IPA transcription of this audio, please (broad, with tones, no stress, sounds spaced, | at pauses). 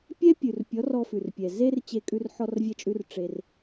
pʲ ɛ˦ pʲ ʉ˨ r pʲ ɔ˨˦ r ɔ˧ f ʉ˨ r pʲ ɛ˨ z e˦ r t͡ɕ e˧ kʼ ʉ˧ r ħ ɔ˧ r vʲ ɛ˧ t͡ʃʼ ʉ˧ r ʈ͡ʂ e˧ r